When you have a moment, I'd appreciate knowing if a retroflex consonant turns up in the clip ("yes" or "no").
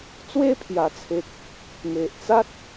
no